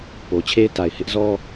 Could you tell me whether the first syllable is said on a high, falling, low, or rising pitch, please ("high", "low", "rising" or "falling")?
low